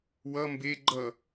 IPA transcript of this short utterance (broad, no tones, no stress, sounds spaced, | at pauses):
w ʌ m b e ɡ͡ǃ ʌ